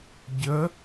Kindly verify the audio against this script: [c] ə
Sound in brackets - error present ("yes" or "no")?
yes